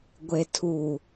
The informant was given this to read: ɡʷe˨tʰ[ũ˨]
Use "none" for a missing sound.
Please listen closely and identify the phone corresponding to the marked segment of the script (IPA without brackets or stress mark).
u˨